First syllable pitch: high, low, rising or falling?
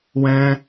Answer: high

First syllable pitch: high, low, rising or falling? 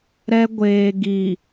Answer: high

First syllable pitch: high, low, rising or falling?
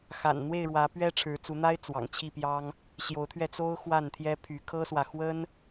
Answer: low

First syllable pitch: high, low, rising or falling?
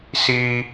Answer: high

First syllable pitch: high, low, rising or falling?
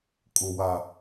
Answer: low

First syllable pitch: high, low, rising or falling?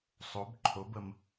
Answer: rising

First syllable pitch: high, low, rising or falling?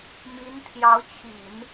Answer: rising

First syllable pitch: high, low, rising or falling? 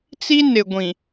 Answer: high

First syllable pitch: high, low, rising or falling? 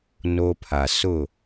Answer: high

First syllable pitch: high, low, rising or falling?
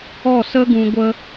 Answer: falling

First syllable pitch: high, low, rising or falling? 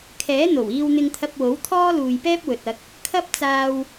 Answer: rising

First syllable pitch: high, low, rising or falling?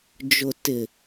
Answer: low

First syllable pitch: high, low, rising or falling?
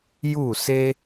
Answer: falling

